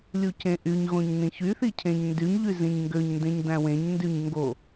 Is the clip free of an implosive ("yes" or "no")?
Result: yes